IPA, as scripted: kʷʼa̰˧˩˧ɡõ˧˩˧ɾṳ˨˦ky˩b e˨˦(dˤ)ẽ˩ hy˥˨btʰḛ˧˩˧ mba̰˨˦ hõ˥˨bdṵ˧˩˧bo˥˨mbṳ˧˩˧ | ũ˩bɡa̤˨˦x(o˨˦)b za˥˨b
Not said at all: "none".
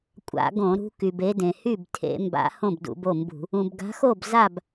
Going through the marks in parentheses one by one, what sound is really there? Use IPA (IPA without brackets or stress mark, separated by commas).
d, o˥˨